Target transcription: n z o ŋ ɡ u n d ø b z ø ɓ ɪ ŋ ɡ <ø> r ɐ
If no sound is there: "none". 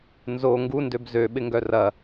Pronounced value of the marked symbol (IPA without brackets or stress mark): œ